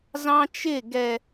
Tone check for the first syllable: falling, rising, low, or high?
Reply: high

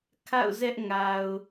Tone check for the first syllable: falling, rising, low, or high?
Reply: falling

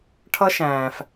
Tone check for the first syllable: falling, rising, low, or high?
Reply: high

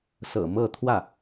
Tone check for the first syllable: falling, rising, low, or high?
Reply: low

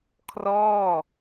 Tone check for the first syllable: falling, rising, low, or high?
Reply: falling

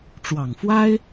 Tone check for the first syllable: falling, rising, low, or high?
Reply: low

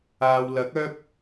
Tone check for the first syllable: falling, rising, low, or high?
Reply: low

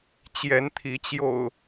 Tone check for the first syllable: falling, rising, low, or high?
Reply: rising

